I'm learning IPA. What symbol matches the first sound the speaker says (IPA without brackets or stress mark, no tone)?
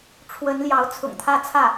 ʈ͡ʂʰ